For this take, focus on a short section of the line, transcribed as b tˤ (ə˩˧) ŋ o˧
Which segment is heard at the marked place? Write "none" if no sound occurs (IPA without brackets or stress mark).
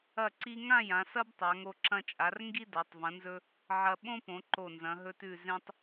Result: a˩˧